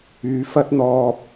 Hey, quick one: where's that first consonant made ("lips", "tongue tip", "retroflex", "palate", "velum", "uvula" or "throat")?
lips